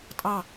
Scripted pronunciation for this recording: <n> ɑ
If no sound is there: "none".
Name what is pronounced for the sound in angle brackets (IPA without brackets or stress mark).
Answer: tʼ